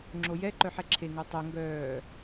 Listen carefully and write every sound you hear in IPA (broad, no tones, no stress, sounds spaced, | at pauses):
ŋ͡ǁ o j ɛ ǃ œ ħ ɛ ǁʰ e ŋ œ tˤ ɛ ŋ ɡ œː